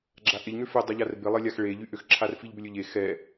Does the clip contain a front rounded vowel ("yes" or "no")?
yes